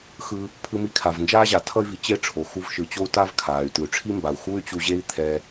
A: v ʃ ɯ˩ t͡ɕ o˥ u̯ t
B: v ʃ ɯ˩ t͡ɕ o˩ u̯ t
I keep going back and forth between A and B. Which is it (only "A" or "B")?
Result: A